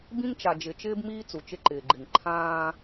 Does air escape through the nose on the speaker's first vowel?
yes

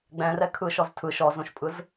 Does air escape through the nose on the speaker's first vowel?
yes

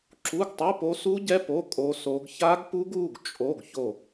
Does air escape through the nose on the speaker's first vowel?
no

